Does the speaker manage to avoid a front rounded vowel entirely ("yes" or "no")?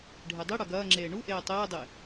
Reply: yes